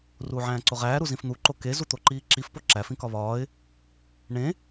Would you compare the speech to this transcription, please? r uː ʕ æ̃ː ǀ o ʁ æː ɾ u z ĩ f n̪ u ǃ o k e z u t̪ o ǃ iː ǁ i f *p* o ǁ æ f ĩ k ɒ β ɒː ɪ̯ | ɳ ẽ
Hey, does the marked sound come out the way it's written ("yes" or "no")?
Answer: yes